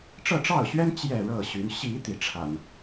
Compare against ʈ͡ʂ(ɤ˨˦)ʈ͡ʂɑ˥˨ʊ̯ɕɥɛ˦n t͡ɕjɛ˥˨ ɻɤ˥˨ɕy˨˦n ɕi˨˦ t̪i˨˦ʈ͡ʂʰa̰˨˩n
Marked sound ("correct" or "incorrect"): incorrect